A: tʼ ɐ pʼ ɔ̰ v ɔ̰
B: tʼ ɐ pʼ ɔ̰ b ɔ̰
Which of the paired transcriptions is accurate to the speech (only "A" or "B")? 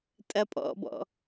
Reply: B